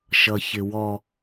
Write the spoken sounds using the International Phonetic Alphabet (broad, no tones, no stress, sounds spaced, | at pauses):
ʃ ʌ ç ɪ w ɔ